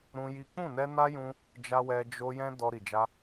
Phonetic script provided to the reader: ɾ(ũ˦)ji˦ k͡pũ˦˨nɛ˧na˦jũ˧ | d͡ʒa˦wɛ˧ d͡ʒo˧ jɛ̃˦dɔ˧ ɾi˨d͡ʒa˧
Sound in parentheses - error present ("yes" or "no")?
no